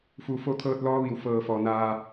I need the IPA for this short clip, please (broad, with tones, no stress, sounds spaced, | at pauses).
f u˩ f o˧˥ t̪ʰ ɤː˧ t̚ l ɔː˧˥ ʋ i˩ w f ɤː˧˩ f ɔː˩ n aː˧